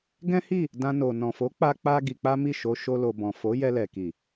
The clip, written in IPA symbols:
ɡɛ̃˦hi˦˨ | dã˦no˧ nɔ̃˨fo˨˦k͡pa˧ k͡pa˧ ɡi˧k͡pa˦mi˦˨ ʃo˧ʃo˧lo˨bɔ̃˨ fo˨˦ jɛ˧lɛ˨ki˨

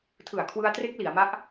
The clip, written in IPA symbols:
tʰɯ˨˩a̯kʰwɯ˧a̯tre˦˥k̚ li˩˦a̯ma˦˥ʔ

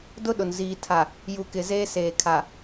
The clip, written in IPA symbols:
dʊ˦ɗʊ˨n ziː˨tʰa˨ | ju˨kɪ˨ zeː˦seː˨kʰa˨

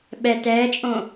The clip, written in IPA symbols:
ɓɛ tɛːt͡ʃʼõ

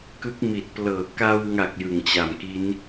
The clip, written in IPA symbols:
kɯ˦˥k̚mi˨˩t̚plɤː˨˩ ka˧wŋa˨˩k̚ jɯ˨˩ŋt͡ɕa˨˩m ki˦˥n

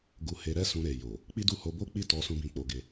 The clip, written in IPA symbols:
ɡu˧he˧ɾɛ˦sũ˧ ɾe˨ jo˨ | k͡pi˦du˦˨ ho˧bo˦k͡pi˦˨tɔ˧ sũ˦bĩ˦˨k͡po˧ɡe˧

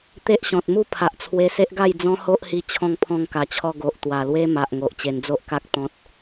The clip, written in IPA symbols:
t̪e˦ʔɕɔ̃˨t̚mu˥˧ pʰa˨ʔt͡sʰwe˧se˦ʔɡa˥˧j d͡zɔ̃˦ho˦ʔhi˧ t͡ɕʰɔ̃˧ŋpʰɔ̃˧ŋka˨˩t͡ɕʰɔ˧ ɡo˨ʔt̪wa˨˩lwe˦ma˨ʔ ŋo˨ʔt͡ɕe˧n d͡zo˦ʔka˦k̚ t̪ɔ̃˦t̚

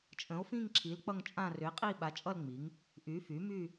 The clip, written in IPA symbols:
t͡ʃʼə̃˩˥o̯fĩ˦˨ŋǁʰi˩˥l k͡pʌ˦˨ŋt͡ʃʼã˦˨ rʏ˩˥e̯qʼi˦˨ɓa˩˥t͡ʃʼʌ˦˨l ŋ͡mi˩˥ŋ | ʔy˩˥ fy˩˥ my˦˨

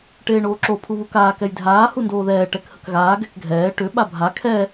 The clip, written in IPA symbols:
ʈeːɳoːǁo pʰuβukaː kɛjdʱaː hundoːðɛː ʈɛkhəkɣaː ɡɛkɡʱɛː ʈʏ ɓabʱa kʰɛ

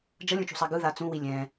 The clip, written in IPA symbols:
d͡ʒʌlʲũt͡ʃṳsˤa ɡɯða t͡sũwi lʲɛ̃

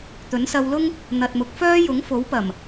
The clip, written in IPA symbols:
t̪ɵ˨˥nsɐ˧wlʊ˥ŋ | n̪ɐ˨t̚mʊ˨k̚fœː˥ jʊ˨˥ŋfo˨˥wpɐ˨˩m

